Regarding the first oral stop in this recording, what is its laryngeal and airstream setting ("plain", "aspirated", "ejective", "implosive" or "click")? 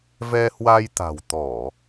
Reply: plain